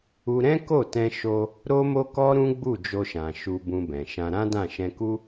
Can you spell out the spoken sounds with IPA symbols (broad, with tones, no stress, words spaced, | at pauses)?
u˧ ɾɛ̃˦ko˦˨ tɛ̃˧ʃo˧ | ɾo˦mo˦kɔ˦ ɾũ˦ɡ͡bu˦˨ d͡ʒo˧ʃã˨ ʃu˧bũ˧bɛ̃˨ʃã˧ ɾã˦dã˦˨ʃɛ̃˧ku˦